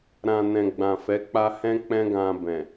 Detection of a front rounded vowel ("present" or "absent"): absent